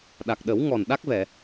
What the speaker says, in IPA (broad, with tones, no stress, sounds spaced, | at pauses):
ɗ a˨˩ k̚ ɗ ə˨˩˦ w ŋ ɔ˨˩ n ɗ a˦˥ k̚ v ɛ˨˩˨